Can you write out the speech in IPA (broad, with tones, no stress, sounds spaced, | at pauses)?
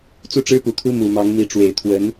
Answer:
t͡s u˥˩ ʈ͡ʂ ɻ̩˥ p u˨˩ t̪ʰ u˥ m u˨˩ m ɑ˧˥ ŋ n̪ i˧˥ ʈ͡ʂ w e˨˩ ɪ̯ t̪ʰ w ə˧˥ n